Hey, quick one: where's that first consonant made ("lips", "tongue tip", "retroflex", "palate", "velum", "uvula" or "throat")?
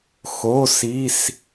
velum